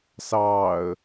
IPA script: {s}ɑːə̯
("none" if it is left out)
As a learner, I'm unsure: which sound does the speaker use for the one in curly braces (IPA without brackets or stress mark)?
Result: s